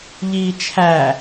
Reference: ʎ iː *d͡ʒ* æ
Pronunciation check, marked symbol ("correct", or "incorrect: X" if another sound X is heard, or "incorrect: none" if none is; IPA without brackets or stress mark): incorrect: t͡ʃʰ